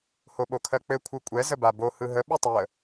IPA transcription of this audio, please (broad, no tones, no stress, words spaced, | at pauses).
hoɓokʰɜk͡pɘ kʷʰɯkʷʼɛ zəbabo hɯɦə ɓɯtˤəː